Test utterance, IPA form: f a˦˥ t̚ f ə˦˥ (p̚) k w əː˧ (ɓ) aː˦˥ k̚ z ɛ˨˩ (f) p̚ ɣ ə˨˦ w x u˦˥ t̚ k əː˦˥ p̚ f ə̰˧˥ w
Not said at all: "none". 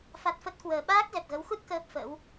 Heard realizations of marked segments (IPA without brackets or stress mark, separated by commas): t̚, ɓ, none